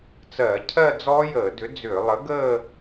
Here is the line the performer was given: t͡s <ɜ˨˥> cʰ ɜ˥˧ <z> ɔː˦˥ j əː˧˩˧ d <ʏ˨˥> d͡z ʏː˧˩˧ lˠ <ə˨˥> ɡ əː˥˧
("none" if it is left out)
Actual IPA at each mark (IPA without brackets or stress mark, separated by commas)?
ɜ˧˩˧, d͡z, ʏ˨˥, ə˨˥